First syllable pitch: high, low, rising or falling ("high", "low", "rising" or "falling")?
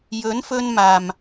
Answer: rising